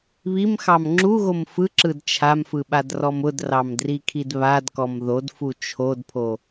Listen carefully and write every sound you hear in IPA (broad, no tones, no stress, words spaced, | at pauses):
βimxɑm ŋ͡ǁuɣom fɯǁɯd t͡ʃʰamfɯɓadrɔm ʊdrɑmdrikʰid βadkɔm ðodfu t͡ʃʰodpʰo